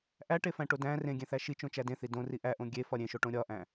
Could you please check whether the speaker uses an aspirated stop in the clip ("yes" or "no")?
no